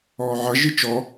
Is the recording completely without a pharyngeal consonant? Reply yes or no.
no